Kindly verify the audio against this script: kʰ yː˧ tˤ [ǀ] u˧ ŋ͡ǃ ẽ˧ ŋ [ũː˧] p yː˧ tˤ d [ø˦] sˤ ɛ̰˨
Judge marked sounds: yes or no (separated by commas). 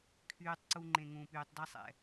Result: yes, yes, no